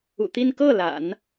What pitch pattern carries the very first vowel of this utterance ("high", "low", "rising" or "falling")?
low